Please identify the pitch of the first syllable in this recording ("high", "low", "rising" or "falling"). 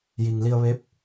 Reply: low